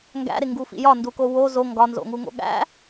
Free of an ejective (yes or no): yes